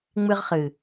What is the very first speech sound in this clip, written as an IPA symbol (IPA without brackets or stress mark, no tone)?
ŋ͡m